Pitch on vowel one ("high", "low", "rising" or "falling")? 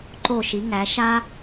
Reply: falling